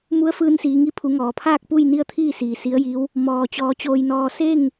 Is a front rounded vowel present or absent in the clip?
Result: absent